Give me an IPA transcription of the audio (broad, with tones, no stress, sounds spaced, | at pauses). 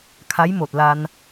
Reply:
kʰ a˧˥ j m o˧˩ t̚ l a˧ n